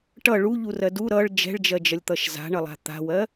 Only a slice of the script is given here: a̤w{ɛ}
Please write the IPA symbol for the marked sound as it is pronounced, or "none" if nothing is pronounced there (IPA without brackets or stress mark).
ɜ